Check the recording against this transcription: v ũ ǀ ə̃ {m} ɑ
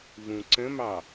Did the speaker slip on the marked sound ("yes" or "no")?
no